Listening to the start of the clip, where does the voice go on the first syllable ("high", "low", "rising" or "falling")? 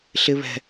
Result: low